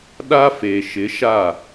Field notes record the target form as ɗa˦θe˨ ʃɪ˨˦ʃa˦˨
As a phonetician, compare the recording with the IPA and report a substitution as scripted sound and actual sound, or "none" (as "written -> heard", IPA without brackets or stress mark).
θ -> f